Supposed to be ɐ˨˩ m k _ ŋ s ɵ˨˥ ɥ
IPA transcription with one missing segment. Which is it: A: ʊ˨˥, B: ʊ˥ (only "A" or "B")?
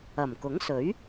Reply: A